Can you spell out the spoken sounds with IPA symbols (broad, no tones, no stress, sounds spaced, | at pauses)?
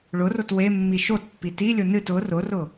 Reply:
ɭ ʊ r o t w e mː i ʃ o t pː i t i lʲ ʊ n ɨ t ʊ r ʊ r ʊ